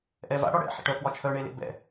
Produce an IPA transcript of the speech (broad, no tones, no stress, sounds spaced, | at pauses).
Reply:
ʔ ɛ v a̰ ɽ ɒ ɽ ɛ̰ ħ ḛ ʈ œ k w ɒ t͡ʃʰ œ ɳ e l ḛ b ɛ̰